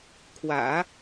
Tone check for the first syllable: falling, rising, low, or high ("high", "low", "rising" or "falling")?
low